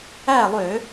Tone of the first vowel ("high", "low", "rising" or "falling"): falling